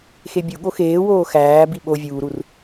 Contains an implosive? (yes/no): yes